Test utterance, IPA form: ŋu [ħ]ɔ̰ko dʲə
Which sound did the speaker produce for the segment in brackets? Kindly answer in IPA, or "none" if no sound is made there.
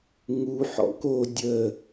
ħ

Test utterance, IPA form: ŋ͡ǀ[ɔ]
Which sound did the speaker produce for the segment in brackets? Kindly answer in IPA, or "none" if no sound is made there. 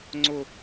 ʊ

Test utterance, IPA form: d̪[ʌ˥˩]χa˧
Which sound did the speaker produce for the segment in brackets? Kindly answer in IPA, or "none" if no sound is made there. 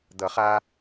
ʌ˨˩˦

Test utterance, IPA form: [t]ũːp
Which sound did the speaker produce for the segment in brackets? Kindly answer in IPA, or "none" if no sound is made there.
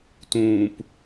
t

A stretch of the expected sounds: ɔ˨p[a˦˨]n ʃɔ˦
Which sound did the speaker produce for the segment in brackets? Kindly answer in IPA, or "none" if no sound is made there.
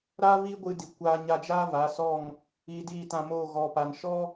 a˨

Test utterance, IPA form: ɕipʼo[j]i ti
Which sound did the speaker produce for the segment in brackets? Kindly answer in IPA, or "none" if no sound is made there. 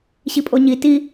ɲ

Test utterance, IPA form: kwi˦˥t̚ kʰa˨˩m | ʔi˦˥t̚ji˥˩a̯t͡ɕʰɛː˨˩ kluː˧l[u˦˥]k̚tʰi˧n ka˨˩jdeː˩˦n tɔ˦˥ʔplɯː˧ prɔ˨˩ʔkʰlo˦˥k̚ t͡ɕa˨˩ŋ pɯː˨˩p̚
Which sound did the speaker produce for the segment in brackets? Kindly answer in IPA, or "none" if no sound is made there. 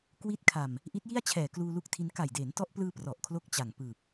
u˦˥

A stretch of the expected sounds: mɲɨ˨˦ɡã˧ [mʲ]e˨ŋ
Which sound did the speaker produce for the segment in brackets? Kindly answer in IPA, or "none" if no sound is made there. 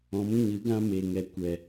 m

